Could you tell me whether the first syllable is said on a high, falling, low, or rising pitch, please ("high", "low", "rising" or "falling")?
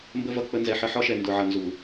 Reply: high